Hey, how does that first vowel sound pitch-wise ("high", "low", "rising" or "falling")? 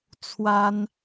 high